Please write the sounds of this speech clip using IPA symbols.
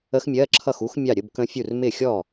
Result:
ə˦˥ x mʲ ɜ˧˥˧ ǁʰ ʌ˥˩ x u˦˥ x mʲ ɑ˥˩ ɾʲ ə˧˥˧ b k ə̃˦˥ fʲ u˥˩ r m ɪ˥˩ xʲ ɔ˥˩

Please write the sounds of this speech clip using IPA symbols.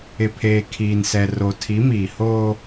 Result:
ɪ˨ pʰ eː˨ kʰ iː˨ n s ɛ˨ r o˨ tʰ i˨˦ m iː˨ h oː˦

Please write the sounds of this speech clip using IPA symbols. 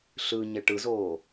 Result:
ɬ ɯ ɲ ɛ ʈ ɯ z oː

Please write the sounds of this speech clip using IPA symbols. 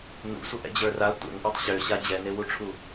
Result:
n ṵ sʷ ə ʔ ɛ̰ d͡ʑ ə˞ r a tʷ ɛ̰ ŋ ʔ ə˞ tˤ ɕ ø ɕ a d͡ʑ ɛ n e w u ʈ͡ʂʰ u

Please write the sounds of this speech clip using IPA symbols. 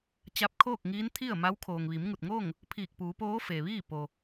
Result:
t͡ɕ a˧˥ p̚ kʰ oː˥˨ k̚ ŋ iː˧˥ n t̪ʰ i˥˨ ə̯ m a˧˥ w kʰ oː˩ ŋ ʋ i˩˧ m ŋ u˧˩ t̚ ŋ oː˥˨ ŋ | pʰ iː˧˩ k̚ p uː˩˧ p oː˧˥ f e˩ ʋ iː˥˨ p o˩

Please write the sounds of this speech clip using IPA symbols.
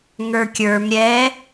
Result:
ŋ ə˞ kʲ ə˞ m ɾʲ ɛ

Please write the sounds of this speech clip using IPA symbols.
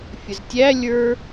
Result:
fʲ ə z tʲ æ lʲ ə˞

